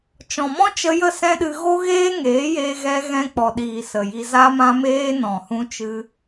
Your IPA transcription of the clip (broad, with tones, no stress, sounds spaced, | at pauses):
t͡ʃ ɔ̃˨ m ɔ̃˦ t͡ʃ ə˧ j ə˦˨ s ɛ̃˦ ɗ ɨ˧ ɣ o˦ ɣ eː˦ ŋ eː˨˦ j eː˧ ɣ ɛ˧ ɣ ɛ̃˧ k͡p ɔ˨ ɗ iː˨ s ə˨ j i˧ z a˧ m ã˧ m eː˧ n ɔ̃˨ h ũ˧ t͡ʃ ɨ˧